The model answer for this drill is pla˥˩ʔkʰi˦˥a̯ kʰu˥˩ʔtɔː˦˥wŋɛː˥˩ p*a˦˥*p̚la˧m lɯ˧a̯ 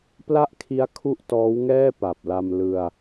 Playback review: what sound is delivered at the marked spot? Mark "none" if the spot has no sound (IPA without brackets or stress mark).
a˨˩